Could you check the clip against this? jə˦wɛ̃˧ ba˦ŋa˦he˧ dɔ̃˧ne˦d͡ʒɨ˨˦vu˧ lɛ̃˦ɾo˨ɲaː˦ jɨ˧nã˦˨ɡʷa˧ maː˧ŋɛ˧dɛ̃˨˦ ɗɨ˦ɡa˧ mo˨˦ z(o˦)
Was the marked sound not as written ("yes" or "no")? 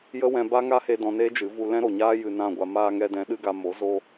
no